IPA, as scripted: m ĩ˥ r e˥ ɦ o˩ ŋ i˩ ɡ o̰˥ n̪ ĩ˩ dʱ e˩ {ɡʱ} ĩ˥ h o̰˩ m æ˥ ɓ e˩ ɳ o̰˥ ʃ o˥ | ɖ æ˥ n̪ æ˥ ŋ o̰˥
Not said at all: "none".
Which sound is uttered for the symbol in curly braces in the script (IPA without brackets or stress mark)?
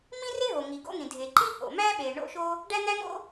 ǃ